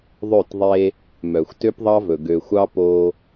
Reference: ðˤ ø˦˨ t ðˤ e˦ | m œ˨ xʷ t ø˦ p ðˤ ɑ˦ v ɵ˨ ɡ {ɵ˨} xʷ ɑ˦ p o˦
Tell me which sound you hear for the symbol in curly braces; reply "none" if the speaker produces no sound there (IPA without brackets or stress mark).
ø˨